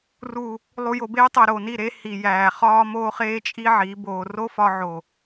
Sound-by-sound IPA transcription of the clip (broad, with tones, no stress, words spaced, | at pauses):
ru˨ | lˠu˨jo˨beː˧tˤæ˨ ɾo˨ni˦˨ɾe˦ hi˨jæː˨χɒː˦ moː˦χeː˦t͡ʃʼi˦ ʕi˨˦boː˧ ro˦fɒ˧ʕo˨